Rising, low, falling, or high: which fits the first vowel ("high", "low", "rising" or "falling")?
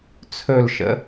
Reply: falling